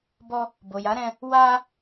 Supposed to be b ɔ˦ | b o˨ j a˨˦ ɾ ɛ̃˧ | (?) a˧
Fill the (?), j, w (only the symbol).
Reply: w